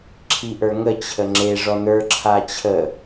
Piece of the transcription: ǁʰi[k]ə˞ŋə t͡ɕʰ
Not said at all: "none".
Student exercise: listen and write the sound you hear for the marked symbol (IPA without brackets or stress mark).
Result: ʔ